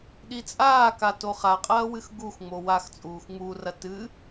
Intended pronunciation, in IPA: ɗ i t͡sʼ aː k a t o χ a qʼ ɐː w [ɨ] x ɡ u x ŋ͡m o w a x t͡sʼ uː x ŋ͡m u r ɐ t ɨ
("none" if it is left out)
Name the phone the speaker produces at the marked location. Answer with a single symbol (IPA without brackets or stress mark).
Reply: ɨ